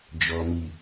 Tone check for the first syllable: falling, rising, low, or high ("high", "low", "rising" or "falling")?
low